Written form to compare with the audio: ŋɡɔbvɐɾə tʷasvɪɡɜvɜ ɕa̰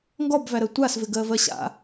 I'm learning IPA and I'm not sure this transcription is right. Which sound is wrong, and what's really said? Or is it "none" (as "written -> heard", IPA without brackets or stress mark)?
ɐ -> æ